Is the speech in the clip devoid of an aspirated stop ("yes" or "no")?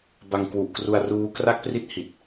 yes